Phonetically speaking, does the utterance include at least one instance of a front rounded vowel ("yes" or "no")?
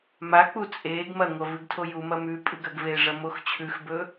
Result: no